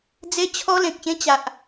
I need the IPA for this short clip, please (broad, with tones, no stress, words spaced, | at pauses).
d͡ze˦t͡ɕʰɔ˦lẽ˨k̚ɕẽ˦ t͡ɕa˨ʔ